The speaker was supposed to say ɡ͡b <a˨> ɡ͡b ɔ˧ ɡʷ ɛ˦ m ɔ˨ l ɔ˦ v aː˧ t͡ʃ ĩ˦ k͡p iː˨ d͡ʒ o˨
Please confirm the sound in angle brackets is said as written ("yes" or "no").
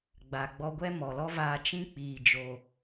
yes